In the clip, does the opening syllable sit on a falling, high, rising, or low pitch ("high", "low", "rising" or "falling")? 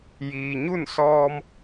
low